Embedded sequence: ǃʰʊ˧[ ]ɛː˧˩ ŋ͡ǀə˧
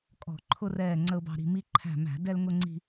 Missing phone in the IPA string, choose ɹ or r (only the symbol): r